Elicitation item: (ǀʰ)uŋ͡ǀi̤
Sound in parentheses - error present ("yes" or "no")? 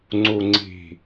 yes